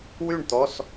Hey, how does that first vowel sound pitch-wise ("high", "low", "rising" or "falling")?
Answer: falling